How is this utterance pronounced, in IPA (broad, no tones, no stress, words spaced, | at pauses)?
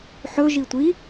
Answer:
ħɵ ʒitʷi